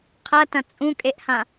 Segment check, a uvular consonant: present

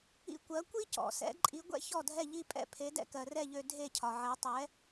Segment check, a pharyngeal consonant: present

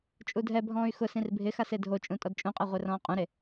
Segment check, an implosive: absent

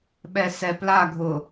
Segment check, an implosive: present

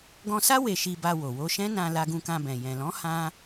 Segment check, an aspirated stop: absent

